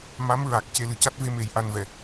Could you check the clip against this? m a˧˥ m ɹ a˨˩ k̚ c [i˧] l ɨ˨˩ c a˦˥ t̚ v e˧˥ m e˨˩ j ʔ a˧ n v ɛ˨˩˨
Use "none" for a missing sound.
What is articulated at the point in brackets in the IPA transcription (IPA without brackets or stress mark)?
e˧